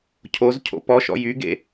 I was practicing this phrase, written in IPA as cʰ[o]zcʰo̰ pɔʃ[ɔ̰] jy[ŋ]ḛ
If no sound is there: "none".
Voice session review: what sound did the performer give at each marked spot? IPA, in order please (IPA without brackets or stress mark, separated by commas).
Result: o, ɔ̰, ɡ